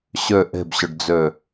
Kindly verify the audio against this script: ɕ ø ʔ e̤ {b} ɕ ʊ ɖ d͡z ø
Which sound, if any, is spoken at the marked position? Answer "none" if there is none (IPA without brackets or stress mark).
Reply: b